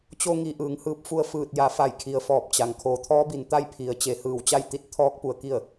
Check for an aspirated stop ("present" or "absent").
present